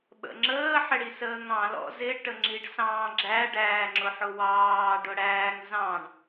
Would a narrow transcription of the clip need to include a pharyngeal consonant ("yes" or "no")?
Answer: yes